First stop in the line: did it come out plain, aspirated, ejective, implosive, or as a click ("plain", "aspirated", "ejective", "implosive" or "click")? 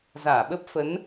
implosive